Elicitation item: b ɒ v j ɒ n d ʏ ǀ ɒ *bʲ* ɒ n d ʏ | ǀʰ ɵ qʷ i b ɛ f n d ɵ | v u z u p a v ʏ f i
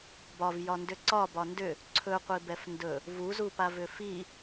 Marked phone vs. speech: incorrect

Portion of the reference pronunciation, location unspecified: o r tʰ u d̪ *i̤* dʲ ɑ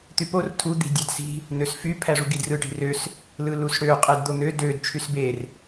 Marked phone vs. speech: correct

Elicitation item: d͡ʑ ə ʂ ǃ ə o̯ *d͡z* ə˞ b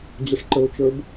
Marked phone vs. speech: incorrect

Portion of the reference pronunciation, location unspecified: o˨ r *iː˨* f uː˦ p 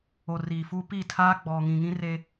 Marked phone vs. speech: correct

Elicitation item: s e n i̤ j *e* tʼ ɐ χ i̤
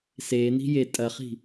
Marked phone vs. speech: correct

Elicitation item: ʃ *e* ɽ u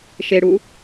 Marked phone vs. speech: correct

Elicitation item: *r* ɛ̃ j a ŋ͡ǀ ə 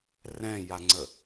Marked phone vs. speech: correct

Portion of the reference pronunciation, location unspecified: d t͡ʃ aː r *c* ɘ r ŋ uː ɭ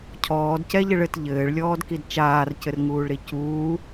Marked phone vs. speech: correct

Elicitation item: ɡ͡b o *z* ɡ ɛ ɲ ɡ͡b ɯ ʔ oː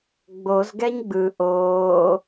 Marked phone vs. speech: correct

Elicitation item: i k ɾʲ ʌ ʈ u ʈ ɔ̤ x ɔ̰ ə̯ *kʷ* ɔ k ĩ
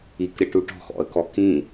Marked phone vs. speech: incorrect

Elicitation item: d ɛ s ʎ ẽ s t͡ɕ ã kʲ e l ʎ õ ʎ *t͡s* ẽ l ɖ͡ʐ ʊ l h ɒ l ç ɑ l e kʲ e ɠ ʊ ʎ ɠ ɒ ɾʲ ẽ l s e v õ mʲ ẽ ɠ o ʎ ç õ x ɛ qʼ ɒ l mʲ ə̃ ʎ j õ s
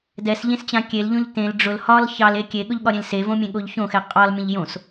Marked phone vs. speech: incorrect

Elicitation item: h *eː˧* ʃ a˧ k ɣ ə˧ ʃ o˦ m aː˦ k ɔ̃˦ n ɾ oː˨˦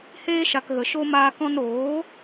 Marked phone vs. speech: incorrect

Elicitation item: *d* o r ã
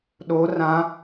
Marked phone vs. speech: incorrect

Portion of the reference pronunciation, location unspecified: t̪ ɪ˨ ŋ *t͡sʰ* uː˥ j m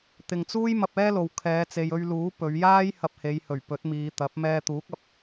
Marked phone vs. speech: incorrect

